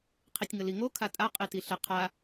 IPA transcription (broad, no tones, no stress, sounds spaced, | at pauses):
qʰ i tʲ ŋ ə l i ŋ o kʰ a tʼ a qʼ i t i ɬ ə qʰ a